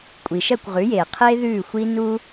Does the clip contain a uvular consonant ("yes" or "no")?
yes